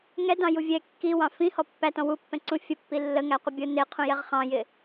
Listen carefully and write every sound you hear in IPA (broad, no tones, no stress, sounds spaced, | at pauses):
ŋ ɛ d ɑ̃ j u vʲ ɛ kː i w ɑ̃ f ĩ h ɔ pː æ t ɔ̃ w u pː ɛ̃ ǀ ũ fʲ ə pː i lː ə ŋ æ qʷ ə bʲ ʊ n ɪ qʰ ũ j ɛ ʁ χ ɑ̃ j ɪ